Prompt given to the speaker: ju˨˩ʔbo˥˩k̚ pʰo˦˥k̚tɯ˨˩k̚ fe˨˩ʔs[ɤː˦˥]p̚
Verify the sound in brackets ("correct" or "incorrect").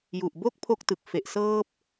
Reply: correct